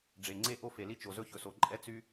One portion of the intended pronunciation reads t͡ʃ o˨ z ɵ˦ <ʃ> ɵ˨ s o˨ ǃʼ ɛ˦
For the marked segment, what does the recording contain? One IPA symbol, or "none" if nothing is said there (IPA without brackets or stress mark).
ç